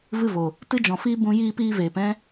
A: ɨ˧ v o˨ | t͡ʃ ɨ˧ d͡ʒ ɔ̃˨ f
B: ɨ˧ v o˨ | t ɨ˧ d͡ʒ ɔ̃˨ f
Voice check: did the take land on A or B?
B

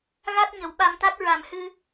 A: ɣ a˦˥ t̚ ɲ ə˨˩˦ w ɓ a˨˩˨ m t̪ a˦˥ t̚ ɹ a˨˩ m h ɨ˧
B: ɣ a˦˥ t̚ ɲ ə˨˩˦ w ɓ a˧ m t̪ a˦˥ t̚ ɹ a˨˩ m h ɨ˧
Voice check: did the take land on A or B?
B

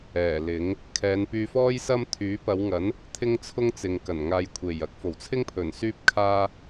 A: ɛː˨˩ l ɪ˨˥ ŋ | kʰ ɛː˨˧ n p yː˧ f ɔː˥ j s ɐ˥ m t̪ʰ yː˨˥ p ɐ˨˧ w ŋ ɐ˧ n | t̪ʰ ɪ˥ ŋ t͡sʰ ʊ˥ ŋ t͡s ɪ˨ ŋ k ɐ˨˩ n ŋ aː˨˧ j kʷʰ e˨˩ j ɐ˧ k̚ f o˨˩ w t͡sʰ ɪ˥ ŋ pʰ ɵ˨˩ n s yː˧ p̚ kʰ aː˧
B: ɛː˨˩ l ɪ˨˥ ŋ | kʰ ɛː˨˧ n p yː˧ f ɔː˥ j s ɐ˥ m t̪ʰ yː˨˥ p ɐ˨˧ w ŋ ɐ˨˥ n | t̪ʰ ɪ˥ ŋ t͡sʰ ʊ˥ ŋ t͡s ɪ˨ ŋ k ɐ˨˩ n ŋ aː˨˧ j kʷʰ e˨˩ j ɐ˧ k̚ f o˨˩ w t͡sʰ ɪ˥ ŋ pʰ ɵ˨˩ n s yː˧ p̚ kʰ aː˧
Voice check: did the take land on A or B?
B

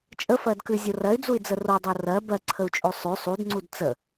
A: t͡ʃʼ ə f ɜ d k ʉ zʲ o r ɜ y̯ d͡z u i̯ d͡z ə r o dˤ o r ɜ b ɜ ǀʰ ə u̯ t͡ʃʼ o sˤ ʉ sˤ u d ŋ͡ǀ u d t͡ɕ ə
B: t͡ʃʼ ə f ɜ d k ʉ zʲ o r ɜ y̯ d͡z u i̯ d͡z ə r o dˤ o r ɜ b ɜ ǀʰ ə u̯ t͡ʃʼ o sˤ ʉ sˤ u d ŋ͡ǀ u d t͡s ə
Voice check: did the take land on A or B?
B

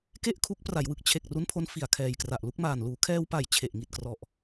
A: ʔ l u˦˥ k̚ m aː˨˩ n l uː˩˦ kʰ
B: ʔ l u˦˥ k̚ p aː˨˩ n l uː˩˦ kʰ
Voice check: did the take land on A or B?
A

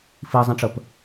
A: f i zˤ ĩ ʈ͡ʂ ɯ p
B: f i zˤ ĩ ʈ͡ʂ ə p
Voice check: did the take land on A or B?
B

